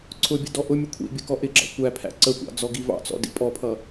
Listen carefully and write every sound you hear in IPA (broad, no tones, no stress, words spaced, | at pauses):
ǀʰʊbʲə dɔʔʊmʲʊ kʷʰḭbʲə kɔʔɪɡ͡ǁɑ̰ kʷæpʰæ̰ ǀəkʷɑ̰ d͡zɔɡivɑ̰t͡sɔ̰ dḭpʼɔpʰʌ